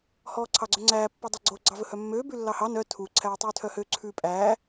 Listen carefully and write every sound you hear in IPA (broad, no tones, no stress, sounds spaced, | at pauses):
h ɔː ǀʰ ɑ ɡ͡ǀ œ ŋ͡ǀ æː pː ɵ dˤ œ ɡ͡ǀ o ɡ͡ǀ ɑ v ɵ h œ mː øː b ʉ lː ɑ h ɑ n œ tʰ u ǀʰ æː tˤ ʉː tʰ œ h ø ǀʰ ʉː pʼ æː